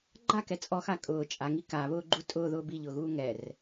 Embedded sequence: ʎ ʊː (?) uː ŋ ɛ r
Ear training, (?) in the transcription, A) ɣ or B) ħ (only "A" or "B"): A